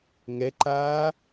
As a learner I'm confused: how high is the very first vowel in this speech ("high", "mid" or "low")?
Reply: mid